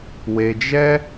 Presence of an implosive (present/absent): absent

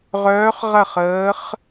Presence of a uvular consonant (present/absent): present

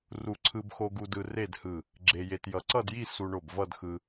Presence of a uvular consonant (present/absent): absent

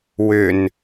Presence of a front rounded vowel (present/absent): present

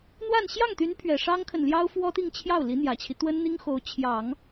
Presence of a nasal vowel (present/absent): absent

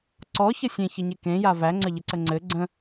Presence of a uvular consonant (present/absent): absent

